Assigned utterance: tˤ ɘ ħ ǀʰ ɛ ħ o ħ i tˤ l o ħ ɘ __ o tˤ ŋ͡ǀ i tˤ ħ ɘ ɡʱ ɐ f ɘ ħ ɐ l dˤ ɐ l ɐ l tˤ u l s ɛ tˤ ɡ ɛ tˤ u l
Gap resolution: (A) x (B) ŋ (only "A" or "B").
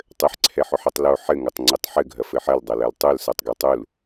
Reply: B